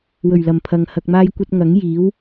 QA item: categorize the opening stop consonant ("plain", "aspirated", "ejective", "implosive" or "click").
aspirated